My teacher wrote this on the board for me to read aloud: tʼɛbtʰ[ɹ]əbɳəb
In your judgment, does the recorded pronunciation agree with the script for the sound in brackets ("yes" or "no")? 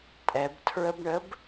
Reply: yes